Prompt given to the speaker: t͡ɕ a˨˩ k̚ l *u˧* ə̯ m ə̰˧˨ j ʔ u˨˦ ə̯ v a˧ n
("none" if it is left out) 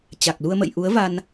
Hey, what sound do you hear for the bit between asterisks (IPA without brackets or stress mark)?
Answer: u˧